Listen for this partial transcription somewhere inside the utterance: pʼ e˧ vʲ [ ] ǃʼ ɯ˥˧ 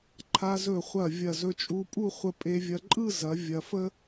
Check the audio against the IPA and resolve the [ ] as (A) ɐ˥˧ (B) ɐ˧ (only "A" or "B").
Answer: B